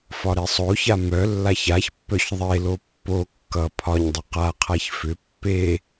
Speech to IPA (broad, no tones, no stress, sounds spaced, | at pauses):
f ɒ ɾ e sˤ o ç a m œ lː a ç a ç pː œ ç ðˤ e l o pː o kː ʌ pʰ ɒ ɲ dˤ ʏ q a qʰ a ç f ʏ pː e